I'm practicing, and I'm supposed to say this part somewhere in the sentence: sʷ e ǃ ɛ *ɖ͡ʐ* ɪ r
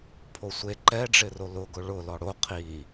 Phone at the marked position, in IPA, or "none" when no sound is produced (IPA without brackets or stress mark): ɖ͡ʐ